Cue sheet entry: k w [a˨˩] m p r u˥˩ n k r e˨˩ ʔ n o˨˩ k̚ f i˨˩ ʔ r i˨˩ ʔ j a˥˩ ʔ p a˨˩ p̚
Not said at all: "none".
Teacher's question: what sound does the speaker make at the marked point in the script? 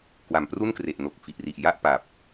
a˨˩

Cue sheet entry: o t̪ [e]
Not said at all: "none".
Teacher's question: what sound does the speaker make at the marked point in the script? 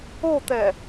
ɛ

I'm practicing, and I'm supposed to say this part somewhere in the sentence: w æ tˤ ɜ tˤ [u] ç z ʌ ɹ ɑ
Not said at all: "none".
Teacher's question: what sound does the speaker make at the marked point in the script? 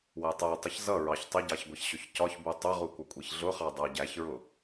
ʊ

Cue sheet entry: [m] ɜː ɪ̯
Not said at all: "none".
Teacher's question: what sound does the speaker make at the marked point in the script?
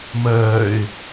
m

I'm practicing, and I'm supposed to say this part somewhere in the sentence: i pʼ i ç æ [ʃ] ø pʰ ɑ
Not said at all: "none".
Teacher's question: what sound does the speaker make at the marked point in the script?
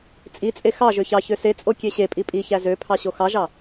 z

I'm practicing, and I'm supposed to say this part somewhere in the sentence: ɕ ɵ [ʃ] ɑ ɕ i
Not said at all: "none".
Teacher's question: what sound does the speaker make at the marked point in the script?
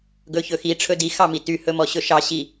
ʃ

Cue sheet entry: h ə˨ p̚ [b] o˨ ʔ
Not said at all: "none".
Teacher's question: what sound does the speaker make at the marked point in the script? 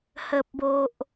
b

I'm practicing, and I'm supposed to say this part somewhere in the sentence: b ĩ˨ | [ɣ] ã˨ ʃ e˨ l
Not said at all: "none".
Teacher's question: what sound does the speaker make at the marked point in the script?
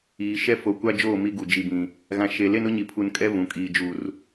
ɣ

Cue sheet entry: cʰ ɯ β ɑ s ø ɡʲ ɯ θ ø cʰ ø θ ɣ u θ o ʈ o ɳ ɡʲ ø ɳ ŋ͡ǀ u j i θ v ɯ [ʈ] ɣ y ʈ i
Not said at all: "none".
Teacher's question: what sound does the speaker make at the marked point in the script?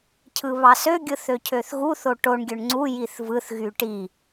θ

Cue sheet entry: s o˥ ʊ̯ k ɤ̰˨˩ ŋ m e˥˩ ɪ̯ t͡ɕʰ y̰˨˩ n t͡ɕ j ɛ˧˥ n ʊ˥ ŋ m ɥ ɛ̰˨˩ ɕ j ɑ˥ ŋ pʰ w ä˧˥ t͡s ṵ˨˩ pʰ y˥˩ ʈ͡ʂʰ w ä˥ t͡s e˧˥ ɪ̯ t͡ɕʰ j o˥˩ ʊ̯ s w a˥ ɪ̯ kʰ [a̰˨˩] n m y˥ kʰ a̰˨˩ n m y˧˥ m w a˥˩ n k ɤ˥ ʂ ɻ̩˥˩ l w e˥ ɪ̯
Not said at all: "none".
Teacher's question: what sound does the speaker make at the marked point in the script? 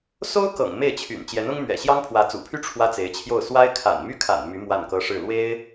a̰˨˩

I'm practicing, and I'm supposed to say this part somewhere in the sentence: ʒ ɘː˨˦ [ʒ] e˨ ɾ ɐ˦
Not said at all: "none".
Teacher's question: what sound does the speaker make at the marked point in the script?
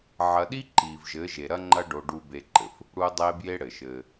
ʒ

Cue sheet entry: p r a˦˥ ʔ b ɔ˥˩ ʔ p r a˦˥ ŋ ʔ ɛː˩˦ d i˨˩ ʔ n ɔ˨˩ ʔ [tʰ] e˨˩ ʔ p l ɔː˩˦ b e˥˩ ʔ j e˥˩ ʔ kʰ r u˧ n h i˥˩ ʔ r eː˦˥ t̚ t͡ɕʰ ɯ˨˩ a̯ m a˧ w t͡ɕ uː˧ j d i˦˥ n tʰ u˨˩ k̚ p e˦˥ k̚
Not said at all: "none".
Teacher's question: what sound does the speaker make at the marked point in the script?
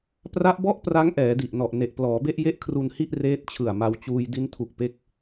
n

